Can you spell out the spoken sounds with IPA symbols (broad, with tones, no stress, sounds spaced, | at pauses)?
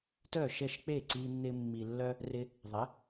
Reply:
t œ˥˩ ʃ ɛ˥˩ ʃ k͡p e˥˩ ǀ i˧ nː ɪ˧ mː i˩ lː œ˧ | r ɪ˧ | ðˤ ɪ˩˥